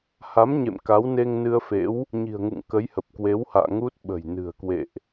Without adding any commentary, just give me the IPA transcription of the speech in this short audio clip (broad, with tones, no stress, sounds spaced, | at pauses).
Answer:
h a˨˦ m ɲ ḛ˧˨ m k a˨˦ w n e˧ ŋ n ɨ˧ ə̯ f ḛ˧˥ w | ɲ i̤˨˩ ə̯ ŋ ṵ˧˨ ŋ k ə˨˦ j h ə˨˩ p̚ k w e˨˦ w h a̰ː˧˨ ŋ u˦˥ t̚ ɓ ə̤˨˩ j n ɨ̤˨˩ ə̯ k w ḛ˧˨ ʔ